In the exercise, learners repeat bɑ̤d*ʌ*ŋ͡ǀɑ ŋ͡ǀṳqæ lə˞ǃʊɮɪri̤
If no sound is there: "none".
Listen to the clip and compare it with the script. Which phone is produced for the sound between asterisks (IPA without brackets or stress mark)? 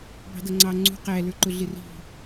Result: ʌ